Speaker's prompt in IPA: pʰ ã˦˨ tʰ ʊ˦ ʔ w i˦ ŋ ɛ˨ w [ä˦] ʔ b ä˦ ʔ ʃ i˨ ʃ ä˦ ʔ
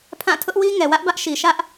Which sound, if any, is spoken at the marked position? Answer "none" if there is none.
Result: ä˦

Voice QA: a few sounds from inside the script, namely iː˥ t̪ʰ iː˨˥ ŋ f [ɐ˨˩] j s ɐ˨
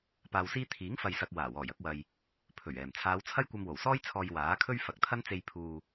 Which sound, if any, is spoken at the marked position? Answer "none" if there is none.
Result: ɐ˨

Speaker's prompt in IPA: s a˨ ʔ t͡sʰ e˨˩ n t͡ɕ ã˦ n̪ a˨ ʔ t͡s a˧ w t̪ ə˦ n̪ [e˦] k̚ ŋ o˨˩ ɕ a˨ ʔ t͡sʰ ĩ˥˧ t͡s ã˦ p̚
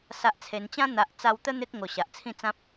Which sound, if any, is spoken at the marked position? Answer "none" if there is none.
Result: e˦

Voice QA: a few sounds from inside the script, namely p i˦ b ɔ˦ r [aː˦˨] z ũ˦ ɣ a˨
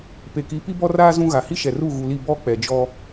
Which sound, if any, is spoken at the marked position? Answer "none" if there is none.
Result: aː˦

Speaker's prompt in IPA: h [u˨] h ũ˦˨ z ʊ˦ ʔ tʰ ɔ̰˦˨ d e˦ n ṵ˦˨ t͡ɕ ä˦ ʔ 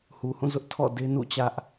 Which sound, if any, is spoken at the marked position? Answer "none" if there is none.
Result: u˨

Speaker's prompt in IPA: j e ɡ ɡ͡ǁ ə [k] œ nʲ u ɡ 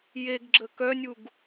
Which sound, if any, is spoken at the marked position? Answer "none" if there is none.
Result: k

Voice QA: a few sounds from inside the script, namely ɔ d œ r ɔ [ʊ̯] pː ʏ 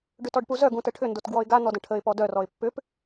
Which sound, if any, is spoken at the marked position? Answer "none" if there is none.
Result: ɪ̯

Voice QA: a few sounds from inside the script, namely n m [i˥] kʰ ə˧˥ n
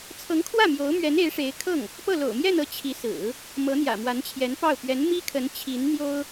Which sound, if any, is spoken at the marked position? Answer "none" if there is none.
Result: i˥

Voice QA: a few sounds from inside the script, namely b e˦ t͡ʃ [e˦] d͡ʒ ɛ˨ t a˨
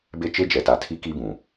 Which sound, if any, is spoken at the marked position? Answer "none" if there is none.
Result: e˦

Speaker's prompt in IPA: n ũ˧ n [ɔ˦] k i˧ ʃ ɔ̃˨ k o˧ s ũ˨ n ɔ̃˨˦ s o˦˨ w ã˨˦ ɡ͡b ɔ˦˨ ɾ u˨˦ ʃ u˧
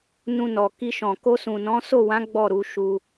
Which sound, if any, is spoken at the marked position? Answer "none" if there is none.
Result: ɔ˨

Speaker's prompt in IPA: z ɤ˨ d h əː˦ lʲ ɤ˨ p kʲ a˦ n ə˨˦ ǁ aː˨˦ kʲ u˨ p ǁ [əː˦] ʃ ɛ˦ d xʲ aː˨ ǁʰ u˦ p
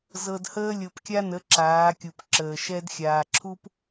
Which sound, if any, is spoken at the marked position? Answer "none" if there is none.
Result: əː˨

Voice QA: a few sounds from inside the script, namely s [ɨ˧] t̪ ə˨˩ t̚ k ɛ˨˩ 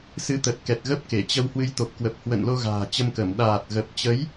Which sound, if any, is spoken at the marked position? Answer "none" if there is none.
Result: ɨ˨˦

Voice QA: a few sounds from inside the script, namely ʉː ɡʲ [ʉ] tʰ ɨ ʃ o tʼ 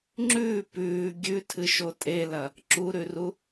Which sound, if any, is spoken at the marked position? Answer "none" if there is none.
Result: ʉ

